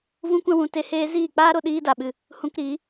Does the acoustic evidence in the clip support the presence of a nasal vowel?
yes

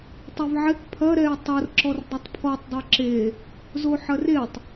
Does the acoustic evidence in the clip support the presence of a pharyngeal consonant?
yes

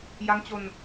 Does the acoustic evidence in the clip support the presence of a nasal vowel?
no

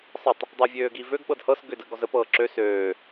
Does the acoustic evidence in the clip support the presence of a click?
yes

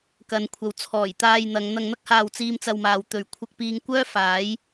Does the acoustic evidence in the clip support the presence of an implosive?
no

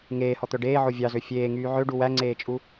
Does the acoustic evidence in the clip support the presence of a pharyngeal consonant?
yes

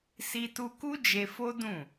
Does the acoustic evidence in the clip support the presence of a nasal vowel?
yes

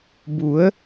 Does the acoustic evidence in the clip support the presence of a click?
no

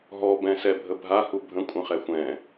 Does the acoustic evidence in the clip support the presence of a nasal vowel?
yes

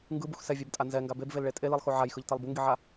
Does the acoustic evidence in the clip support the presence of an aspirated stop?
no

